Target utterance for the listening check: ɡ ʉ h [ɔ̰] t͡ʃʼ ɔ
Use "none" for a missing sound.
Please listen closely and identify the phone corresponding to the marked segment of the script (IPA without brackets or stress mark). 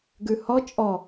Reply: ɔ